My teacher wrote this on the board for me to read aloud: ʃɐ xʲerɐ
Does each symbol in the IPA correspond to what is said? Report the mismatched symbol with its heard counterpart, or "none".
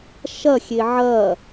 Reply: r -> ʕ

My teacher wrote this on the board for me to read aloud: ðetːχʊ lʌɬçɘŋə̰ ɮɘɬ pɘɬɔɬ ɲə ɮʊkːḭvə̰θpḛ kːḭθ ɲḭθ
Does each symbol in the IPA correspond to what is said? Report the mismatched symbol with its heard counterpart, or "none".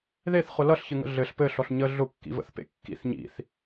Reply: tː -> θ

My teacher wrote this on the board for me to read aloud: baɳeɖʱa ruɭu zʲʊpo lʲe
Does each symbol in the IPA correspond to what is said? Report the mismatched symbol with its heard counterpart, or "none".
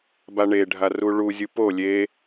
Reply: ʊ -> u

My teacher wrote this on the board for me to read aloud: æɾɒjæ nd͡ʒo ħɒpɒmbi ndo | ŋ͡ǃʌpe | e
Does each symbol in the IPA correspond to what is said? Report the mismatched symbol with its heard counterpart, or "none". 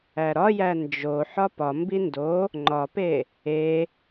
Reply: ʌ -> ɒ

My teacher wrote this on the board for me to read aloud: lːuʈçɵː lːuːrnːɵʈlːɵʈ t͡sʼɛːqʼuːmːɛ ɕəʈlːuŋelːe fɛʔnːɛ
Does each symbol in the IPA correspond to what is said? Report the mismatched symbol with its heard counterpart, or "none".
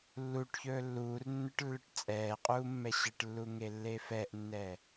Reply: none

